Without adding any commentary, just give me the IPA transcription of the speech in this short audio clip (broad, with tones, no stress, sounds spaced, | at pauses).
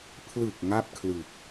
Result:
pʰ l ɯ˨˩ k̚ ŋ a˥˩ p̚ kʰ l ɯ˨˩ k̚